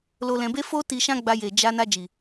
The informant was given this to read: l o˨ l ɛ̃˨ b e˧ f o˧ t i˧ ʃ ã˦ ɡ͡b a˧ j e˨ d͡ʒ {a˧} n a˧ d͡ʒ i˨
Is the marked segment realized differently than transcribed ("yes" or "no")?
no